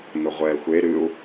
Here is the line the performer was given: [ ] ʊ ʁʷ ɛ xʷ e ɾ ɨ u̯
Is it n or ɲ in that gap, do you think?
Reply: n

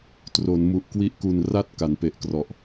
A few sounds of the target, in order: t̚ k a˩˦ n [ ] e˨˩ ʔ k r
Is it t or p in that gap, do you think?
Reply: p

